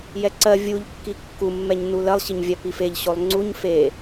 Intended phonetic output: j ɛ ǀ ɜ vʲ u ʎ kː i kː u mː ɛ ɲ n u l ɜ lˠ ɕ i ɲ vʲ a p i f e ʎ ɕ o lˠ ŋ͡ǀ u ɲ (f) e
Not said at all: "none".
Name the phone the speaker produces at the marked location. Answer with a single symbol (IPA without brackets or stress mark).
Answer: f